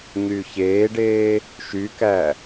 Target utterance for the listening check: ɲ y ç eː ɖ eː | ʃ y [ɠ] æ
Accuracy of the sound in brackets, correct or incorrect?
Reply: incorrect